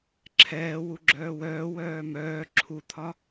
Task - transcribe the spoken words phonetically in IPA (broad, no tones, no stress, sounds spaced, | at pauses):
ǁʰ ɛː w u ɡ͡ǁ œː w œː w œː m œː ǁʰ u t̪ʰ ɒ